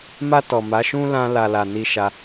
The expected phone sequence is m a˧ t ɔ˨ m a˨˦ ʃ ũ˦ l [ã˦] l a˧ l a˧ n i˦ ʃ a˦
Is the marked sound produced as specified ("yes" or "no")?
yes